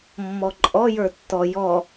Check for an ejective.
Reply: present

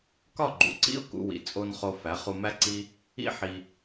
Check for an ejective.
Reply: present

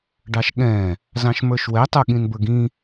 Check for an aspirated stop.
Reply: absent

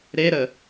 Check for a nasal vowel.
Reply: absent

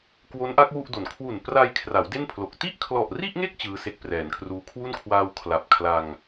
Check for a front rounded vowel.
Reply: absent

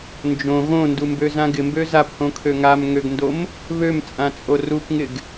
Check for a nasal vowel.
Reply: present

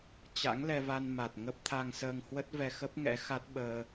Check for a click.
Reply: absent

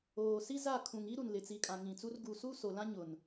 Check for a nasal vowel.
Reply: present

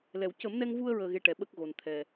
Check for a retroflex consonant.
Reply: present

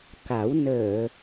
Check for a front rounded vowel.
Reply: absent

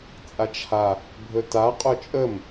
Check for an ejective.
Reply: present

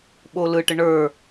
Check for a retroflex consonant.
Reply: present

